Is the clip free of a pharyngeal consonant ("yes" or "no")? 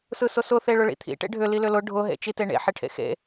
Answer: no